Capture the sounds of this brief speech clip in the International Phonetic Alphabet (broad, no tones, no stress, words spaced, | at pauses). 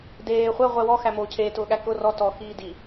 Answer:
deː χʷɛʁʷɛ wɔxæmoː cʰeːtʊːɠæ kʊ rɔ tɔxiː di